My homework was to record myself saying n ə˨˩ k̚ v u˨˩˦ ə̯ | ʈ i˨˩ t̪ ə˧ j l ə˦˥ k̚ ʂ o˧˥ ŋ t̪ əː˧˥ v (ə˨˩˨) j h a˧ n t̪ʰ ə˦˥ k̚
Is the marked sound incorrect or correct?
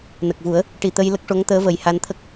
incorrect